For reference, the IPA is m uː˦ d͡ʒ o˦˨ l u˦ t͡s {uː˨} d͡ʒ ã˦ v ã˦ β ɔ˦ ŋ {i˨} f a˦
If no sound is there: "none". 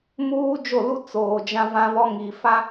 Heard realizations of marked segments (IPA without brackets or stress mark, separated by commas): oː˨, i˨